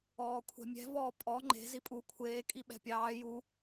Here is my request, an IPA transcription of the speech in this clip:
ɔːkʷʰɛ̤mʲɛ̤ vɔːpʼɔ ŋ͡ǃe̤ zipʼu kʷʰeː kʼiɓɛ̤pʲɑː ju

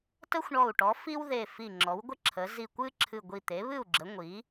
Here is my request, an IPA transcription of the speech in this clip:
tə˥xʷɳɔ˧˩u̯ʈɔ˩˥ fi˥wðe˧˩ fi˧˩ŋ͡ǁɔ˩˥wɡʷə˥ ǁʰə˩˥ zi˧˩kʷɨ˥ǁʰɨ˧˩ ɡʷi˧˩t̪e˩˥βɨ˥˩u̯ɡ͡ǁə˩˥ ŋʷi˩˥

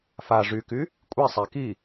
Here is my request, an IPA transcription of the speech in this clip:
fa ʐyky | kʷʼisˤæ ki

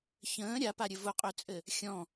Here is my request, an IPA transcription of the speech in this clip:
çə̃ː ɾʲapaɾʲɘ vʊqʼøt͡sʼɘ | xʲɔ̃

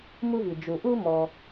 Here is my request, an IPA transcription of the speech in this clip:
mu˦vi˩ d͡ʒu˩ʔu˦ mɔ˨

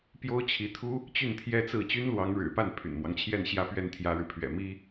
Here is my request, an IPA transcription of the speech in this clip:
pjo˥ʊ̯t͡ɕʰi˧˥t̪ʰu˥ | t͡ɕy˥˩nt̪ʰjɛ˥t͡sɹ̩˥˩ t͡ɕy˥nlwɑ˧˥ŋɻɻ̩˨˩pa˥˩n pʰy̰˨˩nmwɑ˦ŋt͡ɕʰjɛ˥˧n ɕjä˥˧pɥɛ˥˩n t̪ʰjä˥ɻɻ̩˨pʰɥɛ̰˨˩mi˥

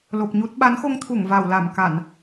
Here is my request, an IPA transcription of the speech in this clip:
lo˨˩p̚ɲu˦˥t̚ ɓa˨˦nxo˧ŋt̪ʰu˧˩ŋ va˧˩wla˧˩m ka˧˩˨n

